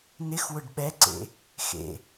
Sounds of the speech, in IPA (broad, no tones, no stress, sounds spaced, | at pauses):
n ɪ x w ʊ ɖ ɓ ɛ ǀ ḛ | x ḛ